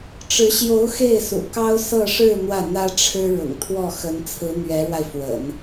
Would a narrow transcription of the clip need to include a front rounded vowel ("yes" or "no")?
no